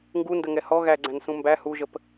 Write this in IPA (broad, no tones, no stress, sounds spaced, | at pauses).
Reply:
ŋ ɡ u n d ə ŋ ɛ h ɔ ɣ æ ɡ͡ǀ æ̃ n s ũ m b æ h u ʒ ə p